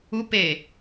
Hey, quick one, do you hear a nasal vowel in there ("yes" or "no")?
no